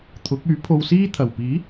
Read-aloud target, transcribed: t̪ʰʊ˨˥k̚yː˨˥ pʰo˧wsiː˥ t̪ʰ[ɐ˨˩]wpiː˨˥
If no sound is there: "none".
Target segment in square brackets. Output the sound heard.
ɐ˨˩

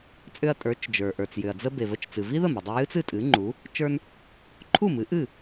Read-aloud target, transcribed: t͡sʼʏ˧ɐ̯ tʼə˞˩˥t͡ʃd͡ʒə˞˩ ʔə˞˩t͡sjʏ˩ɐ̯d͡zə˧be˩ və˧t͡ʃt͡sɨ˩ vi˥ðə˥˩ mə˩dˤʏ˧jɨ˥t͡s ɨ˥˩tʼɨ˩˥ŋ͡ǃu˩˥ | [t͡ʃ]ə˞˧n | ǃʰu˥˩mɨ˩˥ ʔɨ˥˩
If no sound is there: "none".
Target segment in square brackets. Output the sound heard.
t͡ʃ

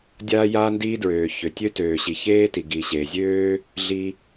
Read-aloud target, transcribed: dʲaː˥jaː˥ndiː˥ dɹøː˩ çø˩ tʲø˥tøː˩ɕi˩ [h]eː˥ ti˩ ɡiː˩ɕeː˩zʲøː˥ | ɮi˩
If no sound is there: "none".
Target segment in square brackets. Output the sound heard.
ç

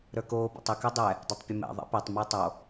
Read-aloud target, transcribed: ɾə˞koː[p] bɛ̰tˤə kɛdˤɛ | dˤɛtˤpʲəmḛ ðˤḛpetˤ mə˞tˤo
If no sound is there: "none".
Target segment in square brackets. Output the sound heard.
none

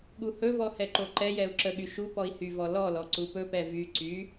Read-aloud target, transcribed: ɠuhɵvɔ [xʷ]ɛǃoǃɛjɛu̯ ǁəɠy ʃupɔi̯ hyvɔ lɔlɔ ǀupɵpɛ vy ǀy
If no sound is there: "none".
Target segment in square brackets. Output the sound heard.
h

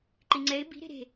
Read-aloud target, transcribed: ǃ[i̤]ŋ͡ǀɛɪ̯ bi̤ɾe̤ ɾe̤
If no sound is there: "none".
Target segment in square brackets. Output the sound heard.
i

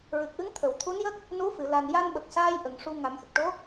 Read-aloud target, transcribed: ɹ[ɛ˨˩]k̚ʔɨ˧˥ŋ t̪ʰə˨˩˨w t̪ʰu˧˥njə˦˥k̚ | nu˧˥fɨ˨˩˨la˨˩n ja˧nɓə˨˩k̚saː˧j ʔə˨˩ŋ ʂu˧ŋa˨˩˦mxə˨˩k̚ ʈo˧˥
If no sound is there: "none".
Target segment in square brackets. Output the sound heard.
ɨ˨˩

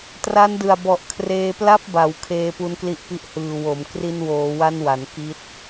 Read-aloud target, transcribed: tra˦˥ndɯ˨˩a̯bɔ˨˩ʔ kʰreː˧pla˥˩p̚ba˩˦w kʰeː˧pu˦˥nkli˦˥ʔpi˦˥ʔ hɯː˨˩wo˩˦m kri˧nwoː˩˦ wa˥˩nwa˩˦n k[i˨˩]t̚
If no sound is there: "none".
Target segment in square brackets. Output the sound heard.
i˦˥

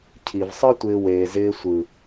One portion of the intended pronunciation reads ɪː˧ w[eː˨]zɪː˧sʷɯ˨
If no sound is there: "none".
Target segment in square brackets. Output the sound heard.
eː˨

